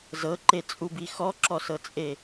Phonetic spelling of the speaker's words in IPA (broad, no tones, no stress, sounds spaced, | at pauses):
z ɤ ǃ e t͡sʼ u b i x ɔ ǁ ɔ s ɤ t͡sʼ e